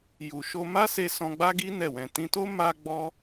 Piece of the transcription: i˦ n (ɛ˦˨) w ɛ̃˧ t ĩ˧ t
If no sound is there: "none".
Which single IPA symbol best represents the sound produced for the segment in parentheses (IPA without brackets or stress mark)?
ɛ˦˨